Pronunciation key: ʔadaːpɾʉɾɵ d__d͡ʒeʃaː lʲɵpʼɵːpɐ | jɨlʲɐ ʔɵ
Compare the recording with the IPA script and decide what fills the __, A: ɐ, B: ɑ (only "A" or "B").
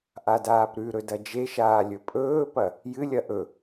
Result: A